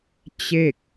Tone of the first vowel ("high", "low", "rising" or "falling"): falling